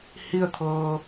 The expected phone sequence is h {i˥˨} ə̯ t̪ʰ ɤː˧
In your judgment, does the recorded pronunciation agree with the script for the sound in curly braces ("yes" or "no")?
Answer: yes